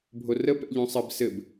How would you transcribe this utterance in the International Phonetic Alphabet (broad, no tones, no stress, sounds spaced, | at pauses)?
bʱ o r ə p ɛ̰ ʎ õ sˤ ɘ b s ɘ b